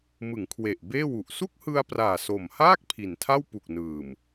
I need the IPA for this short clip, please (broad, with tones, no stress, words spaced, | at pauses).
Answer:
mɯ˩˦ŋkʰwe˨˩ʔ beː˥˩wu˨˩ʔ su˥˩k̚hɯ˧a̯praː˨˩ so˨˩mhaː˥˩k̚ pʰi˨˩ntʰa˥˩w pu˨˩k̚nɯː˨˩m